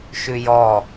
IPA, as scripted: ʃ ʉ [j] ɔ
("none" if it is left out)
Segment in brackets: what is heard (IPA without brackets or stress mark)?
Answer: j